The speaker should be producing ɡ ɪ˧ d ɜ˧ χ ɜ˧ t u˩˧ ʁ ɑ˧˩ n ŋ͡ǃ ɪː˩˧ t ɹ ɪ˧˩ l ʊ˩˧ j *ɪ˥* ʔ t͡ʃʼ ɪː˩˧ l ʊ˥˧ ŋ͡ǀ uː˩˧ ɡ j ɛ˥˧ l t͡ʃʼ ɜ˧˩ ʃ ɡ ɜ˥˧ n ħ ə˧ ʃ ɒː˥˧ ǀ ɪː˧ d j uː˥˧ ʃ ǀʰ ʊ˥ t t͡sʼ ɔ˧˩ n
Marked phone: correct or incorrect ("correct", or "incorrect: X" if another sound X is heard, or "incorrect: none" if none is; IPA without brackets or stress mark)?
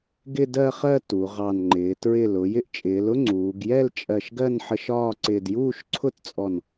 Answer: incorrect: ɪ˧